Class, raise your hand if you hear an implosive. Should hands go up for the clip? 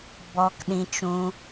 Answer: yes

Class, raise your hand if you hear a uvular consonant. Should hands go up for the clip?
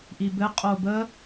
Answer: yes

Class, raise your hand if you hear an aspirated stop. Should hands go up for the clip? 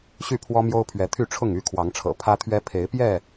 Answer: yes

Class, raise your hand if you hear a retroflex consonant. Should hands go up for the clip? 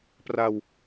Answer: no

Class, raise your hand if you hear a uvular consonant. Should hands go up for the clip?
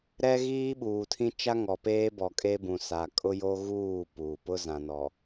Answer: no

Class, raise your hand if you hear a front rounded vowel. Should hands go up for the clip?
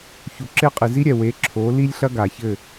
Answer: no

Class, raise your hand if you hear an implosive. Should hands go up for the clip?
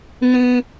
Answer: no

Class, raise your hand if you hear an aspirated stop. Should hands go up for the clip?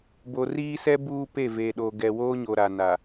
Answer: no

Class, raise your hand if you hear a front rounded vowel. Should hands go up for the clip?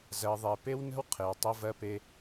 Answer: no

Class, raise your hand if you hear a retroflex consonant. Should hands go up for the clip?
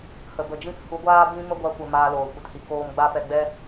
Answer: no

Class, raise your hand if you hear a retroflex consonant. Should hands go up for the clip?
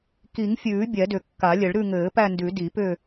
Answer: yes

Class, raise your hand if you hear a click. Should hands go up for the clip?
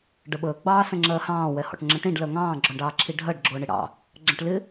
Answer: yes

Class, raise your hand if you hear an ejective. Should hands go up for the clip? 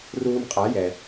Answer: yes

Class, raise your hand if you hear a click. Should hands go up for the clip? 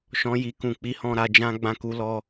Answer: no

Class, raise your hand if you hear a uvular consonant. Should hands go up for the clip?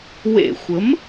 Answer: no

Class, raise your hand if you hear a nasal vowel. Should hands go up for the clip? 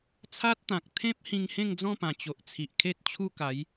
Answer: yes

